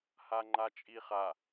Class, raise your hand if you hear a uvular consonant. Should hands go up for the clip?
yes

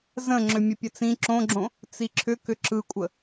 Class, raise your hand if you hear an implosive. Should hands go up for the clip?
no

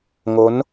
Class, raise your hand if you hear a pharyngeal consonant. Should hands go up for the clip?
no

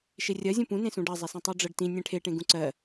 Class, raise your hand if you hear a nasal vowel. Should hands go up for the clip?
yes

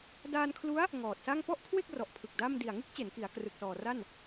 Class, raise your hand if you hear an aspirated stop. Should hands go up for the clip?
yes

